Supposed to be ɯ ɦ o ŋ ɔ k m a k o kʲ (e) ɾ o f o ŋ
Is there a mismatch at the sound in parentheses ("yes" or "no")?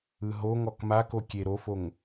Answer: no